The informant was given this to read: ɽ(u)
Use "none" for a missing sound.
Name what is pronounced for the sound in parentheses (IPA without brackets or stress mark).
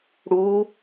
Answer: u